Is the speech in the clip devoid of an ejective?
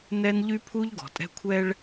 no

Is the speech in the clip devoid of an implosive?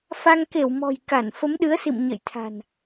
no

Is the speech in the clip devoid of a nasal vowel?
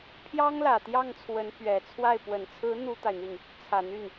yes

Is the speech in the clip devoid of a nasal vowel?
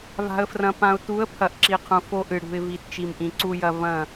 no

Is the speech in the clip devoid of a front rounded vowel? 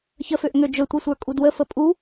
no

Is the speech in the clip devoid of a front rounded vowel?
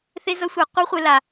yes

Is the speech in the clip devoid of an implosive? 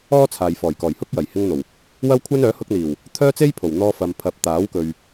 yes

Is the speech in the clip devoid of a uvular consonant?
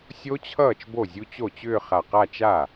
no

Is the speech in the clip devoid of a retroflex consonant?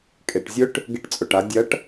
no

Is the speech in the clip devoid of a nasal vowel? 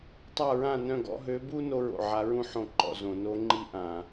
no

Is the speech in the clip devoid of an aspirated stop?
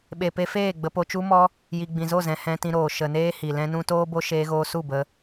yes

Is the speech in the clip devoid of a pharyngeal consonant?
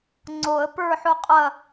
no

